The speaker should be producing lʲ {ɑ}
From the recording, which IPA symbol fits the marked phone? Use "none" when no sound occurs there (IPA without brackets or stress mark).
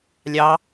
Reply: ɑ